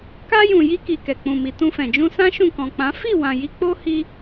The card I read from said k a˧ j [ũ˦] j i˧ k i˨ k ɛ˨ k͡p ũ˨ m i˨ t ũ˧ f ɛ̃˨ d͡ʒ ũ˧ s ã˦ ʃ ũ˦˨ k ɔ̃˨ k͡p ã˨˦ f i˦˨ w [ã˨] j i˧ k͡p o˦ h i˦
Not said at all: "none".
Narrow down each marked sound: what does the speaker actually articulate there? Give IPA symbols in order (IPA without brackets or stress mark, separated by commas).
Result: ũ˨, ã˨